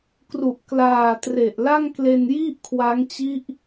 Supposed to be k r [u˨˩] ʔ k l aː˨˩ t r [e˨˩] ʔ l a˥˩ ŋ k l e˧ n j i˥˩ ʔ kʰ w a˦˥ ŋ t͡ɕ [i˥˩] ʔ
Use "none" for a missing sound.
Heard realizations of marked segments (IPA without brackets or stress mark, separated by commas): u˨˩, e˨˩, i˦˥